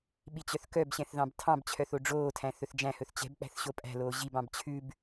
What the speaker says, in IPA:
ɓ i t͡ɕ œ θ k œ b ɕ ɛ̃ θ ð ɑ̃ b tʰ ɑ̃ b t͡ɕʰ œ θ o ɖ͡ʐ oː tʰ æ̃ θ ɵ θ d͡ʒ æ̃ h ɵ θ t͡ɕ ɛ̤ b k͡p æ̤ θ ɕ o pʼ æ̤ l oː ʑ i b ɑ̃ b t͡ɕʰ ʉ b

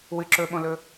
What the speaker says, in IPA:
w ɨ ǁ ɵ ɓ õ l ɵ

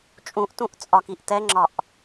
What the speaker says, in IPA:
t͡ʃʼ ũ ʔ t ũ ʔ t͡sʼ ɒ k i ʔ t ɛ ŋ͡ǁ ɒ ʔ

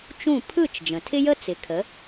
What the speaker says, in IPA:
t͡ʃ ũ˥˩ pʰ ɯ˥˩ t͡ʃ d͡ʒ ə̃˩ tʰ ɪ˥ j ə˥ t͡s ɪ˩˥ kʰ ə˩˥

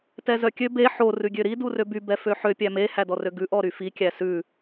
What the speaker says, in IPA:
t ɛ z œ kʲ ø b e ħ o r ʉ ɡʲ ø ɾ i d u r ø b y b ɛ f ø ħ ø pʲ æ m e h æ d ɔ r ø ɡ ʉ ʔ ɔ ɾ y f i kʲ æ s ʉ

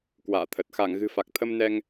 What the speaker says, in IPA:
k w a̰ː˧˨ t̪ʰ ə˨˩ t̚ x a˧˩ ŋ ɣ ɨ̤˨˩ f a˨˩ k̚ t̪ʰ ə˧ m n ɛ˧ ŋ

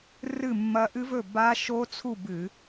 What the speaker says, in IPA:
r ɨ˥˨ mː ɐ˦˥ ʔ ɨ˦˥ v ɵ˥˨ b a˦˥ ʃ o˦˥ t͡sʰ u˥˨ b ɨ˧˩˧

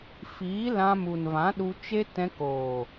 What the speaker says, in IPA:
f iː˨˦ l ã˧ m u˨ n v ã˨˦ ɗ u˧ t͡ʃ e˦ t ɛ̃˧ k oː˨

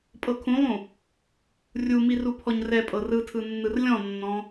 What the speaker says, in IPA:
pʼ ɤ kʰ ũ lˠ ũ | rʲ u m i r u pʰ ɔ ɲ r ɛ pʼ ɤ r ɯ tʰ ɯ nː ɯ r lʲ ɔ̃ nː ɔ̃

